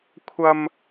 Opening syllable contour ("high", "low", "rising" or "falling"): high